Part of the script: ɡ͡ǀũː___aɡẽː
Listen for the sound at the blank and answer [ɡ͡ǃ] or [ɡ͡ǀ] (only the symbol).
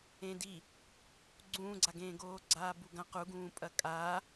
ɡ͡ǀ